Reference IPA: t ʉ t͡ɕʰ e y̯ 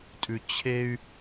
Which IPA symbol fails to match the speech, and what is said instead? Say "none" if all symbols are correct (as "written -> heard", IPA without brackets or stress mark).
t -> tʼ